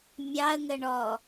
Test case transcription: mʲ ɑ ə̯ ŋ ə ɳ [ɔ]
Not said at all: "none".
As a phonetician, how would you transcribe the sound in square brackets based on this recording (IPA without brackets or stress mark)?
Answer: ɔ